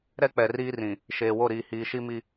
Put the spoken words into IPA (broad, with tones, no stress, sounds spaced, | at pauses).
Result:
ɾ ɛ˦ k͡p ɛ˨ r iː˦ r ĩ˨ | ʃ eː˨ w o˦˨ ɾ iː˨ h iː˨ ʃ i˦ m i˦